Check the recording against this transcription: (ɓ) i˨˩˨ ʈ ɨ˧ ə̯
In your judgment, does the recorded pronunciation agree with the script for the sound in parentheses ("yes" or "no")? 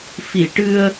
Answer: no